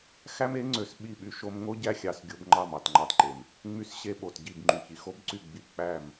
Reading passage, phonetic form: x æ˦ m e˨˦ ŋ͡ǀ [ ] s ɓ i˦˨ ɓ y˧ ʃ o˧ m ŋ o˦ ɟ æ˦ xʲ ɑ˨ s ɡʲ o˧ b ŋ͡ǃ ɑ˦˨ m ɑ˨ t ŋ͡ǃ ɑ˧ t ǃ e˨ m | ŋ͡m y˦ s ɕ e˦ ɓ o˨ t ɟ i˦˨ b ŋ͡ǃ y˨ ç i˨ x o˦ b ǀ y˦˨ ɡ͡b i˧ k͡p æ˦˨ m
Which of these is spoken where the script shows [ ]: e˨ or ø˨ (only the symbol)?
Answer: ø˨